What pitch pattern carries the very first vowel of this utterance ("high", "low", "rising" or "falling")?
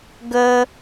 high